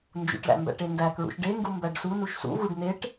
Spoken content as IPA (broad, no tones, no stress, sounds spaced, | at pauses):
n d͡ʒ ṵ ʈ l æ̰ m b æ̰ ʈ e n d æ k ɹ ṵ ʃ ɖ e ŋ ɡ u m b æ ɖ s u n u ʃ s ṵ ɣ u ɖ n e ʈ